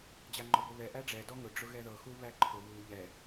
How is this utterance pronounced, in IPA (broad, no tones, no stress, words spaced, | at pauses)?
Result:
d͡ʑaŋ͡ǃɔbʊβɛ ʔæɖ͡ʐɛ dɔŋʊ ɖ͡ʐʊɣɛðɤ xuβæǃʰʊ βu ʎɛ